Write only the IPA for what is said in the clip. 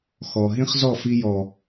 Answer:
x ɔ˨ ɦ ĩ˦ χ z ɔ˦˨ f i˧ j ɔ˨

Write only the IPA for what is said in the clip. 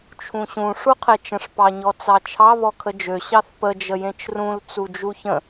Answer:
t͡ʃʰ ũ ɕ ũ ʂ u qʰ e t͡ʃ ə̃ ʂ p ɑ ɲ ɔ t͡s ɑ t͡ʃʰ ɑ β ɔ kʰ ə d͡ʒ ø ɕ ɑ θ p ə d͡ʒ ə j ẽ t͡ʃ r ũ l t͡s u d͡ʒ u ç ə̃

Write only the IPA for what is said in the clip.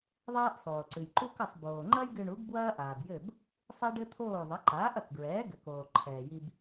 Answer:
ðˤ ɛː˥ ʔ sˤ oː˩ ǀ ɨ˩ j ǃ u˥ k ɐ˥˩ sˤ b oː˩ ŋ͡ǃ ɐ˥ j ɡ ɨ˧ ɳ u˩˥ ɡ b w ɐː˥ ʔ aː˩ b j ɘ˥˩ b | sˤ e˥ ɖ ɘ˥ t̪ʰ oː˥˩ ðˤ ɐ˩˥ ǃ aː˩˥ ʔ ɐ˩ k ɡ ɹ ɛː˩˥ ɡ ɘ˩ k oː˩ ǃʰ ɛː˩ j i˧ b

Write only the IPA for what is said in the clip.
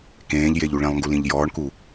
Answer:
k ẽː ʎ j e ʎ u ɭ ĩ lˠ ŋ ɡ u l ĩ ʎ j ɔː ɳ k u

